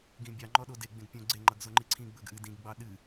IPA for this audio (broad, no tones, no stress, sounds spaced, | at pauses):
ɡ ĩ bʲ ɑ ŋ͡ǃ ɔ ɗ o d e ɡ͡b ẽ ɡ pʲ õ ɡ͡ǀ e ŋ͡ǃ ʌ ɡ z o ŋ͡ǃ i ǀʰ ĩ ɡ͡b ɵ ɡ ʔ ɨ d ĩ ɡ ɡ͡b ɑ ɗ ɨ